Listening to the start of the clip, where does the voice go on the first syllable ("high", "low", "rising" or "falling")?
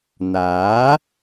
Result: rising